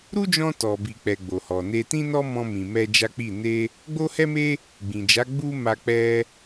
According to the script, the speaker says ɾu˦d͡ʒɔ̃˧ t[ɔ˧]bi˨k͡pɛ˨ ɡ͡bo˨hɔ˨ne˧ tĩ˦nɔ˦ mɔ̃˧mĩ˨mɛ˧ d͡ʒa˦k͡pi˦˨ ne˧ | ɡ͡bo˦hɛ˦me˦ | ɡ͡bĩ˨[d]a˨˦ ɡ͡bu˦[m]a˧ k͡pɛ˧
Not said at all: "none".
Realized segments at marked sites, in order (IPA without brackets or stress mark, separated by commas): ɔ˨, d͡ʒ, m